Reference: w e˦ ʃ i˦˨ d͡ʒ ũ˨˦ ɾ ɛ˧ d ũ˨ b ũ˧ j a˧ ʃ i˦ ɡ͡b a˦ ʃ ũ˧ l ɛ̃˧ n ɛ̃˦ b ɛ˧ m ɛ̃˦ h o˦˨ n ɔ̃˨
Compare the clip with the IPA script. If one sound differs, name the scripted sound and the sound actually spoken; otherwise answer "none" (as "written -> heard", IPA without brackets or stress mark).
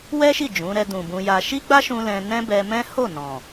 e˦ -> ɛ˦